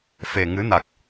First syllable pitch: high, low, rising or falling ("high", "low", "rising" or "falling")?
low